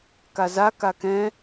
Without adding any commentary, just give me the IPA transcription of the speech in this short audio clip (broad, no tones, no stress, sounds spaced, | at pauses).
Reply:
k a z a k a k ɛ̃